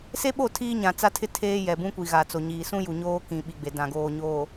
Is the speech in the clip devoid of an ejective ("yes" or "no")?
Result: yes